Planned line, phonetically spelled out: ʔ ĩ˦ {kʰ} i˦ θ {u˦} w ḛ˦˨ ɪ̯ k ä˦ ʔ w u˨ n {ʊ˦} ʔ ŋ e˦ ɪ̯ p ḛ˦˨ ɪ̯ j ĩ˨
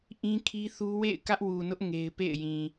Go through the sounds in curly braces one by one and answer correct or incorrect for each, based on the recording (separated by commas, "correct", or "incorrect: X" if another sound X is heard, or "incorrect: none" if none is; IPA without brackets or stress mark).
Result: correct, correct, correct